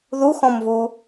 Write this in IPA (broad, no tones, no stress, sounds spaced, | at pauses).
ð u x ɔ̃ m v u